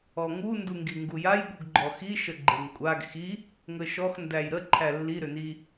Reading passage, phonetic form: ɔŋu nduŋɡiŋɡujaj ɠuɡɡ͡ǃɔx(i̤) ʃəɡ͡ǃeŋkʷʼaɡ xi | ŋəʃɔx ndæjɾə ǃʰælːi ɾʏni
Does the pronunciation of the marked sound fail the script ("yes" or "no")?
yes